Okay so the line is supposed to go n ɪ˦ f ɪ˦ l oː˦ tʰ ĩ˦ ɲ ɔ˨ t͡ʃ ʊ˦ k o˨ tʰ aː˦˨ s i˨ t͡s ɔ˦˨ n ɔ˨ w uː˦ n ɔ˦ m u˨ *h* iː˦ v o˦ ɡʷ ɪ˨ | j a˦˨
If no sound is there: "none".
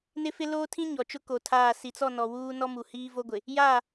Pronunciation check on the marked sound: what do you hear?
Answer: h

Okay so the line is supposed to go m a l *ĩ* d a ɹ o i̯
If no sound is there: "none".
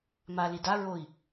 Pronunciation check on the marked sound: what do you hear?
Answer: i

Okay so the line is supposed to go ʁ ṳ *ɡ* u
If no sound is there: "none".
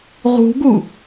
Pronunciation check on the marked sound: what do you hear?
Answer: ɡ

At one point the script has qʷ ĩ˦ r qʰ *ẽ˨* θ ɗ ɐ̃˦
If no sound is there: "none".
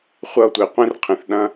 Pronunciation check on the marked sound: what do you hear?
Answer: ẽ˨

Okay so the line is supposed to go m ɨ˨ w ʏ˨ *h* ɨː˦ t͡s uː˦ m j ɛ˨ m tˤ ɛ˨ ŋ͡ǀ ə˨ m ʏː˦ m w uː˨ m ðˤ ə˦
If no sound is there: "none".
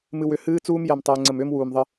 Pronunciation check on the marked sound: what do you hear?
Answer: h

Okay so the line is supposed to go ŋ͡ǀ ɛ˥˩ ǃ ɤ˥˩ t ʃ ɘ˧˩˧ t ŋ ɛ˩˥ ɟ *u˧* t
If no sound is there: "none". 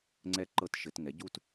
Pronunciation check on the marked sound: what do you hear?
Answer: u˥˧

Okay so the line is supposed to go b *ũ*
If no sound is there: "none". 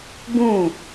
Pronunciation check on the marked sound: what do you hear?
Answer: ũ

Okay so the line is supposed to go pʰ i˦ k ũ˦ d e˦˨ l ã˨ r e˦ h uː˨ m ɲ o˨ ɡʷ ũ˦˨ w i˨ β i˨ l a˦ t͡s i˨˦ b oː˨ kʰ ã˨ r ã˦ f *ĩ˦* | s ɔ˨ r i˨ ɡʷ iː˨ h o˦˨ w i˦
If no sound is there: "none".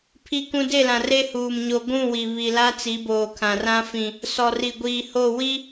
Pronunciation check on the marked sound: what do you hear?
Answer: ĩ˨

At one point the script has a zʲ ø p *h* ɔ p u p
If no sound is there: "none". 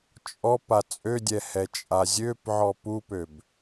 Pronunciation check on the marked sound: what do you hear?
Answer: ʕ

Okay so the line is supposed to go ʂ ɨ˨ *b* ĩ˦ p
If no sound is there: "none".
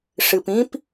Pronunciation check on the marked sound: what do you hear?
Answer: p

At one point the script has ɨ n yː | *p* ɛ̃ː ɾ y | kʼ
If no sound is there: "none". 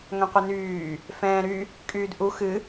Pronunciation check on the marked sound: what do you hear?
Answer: f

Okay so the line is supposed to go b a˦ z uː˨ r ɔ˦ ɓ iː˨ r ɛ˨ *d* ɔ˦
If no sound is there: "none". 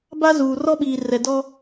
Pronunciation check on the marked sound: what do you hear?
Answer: d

